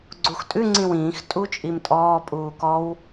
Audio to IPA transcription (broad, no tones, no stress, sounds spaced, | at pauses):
ɡ͡ǀ u x tʼ ʉ ŋ͡ǀ ĩ w ĩː x tʼ u t͡ʃʼ i m tʼ ɔː pʼ uː k ɔ w